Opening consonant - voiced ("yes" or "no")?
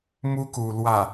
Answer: yes